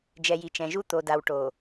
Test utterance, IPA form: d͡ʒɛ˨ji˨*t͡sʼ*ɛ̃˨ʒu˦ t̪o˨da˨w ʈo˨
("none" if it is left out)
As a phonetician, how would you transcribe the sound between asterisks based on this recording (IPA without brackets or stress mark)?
t͡ʃ